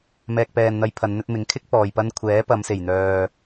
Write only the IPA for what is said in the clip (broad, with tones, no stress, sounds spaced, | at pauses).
m ɛː˨ k̚ p ɛː˨ n n̪ ɐ˨˧ j pʰ ɐ˨˧ n n̪ ɵ˧ t̚ m ɪ˨˥ ŋ kʰ ɪ˥ k̚ p ɔː˨ j p ɐ˧ n kʷʰ ɛː˨˥ p ɐ˨˧ m s e˨˩ j n̪ œː˨